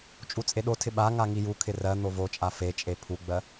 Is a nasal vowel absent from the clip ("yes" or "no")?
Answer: yes